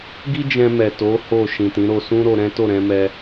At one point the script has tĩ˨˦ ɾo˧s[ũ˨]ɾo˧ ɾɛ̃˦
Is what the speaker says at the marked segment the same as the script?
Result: no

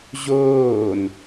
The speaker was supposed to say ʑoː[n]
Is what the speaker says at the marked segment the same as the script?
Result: yes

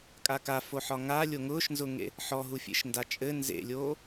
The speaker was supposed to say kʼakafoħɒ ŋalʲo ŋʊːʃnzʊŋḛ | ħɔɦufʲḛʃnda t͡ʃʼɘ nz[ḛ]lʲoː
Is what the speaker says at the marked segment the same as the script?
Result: yes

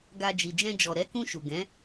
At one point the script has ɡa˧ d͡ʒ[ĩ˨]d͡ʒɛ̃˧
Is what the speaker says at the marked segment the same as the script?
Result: no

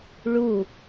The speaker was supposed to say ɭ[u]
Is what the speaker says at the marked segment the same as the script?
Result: yes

